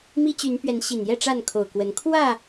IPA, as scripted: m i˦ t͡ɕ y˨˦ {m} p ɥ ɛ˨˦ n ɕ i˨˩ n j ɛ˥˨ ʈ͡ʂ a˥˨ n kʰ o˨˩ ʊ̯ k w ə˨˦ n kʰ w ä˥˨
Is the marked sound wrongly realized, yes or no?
yes